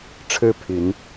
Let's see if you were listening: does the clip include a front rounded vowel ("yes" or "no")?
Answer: yes